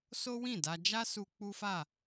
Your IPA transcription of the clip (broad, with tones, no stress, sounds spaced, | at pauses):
s o˦ w ĩ˦˨ d a˧ d͡ʒ a˦ s u˧ k͡p u˦ f a˦˨